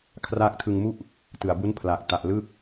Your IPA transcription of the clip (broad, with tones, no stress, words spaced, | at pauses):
kʰraː˦˥k̚tʰɯ˧ŋmu˥˩ʔ | tɯ˨˩a̯bu˦˥n pʰlaː˨˩k̚ta˨˩ʔ lɯ˥˩k̚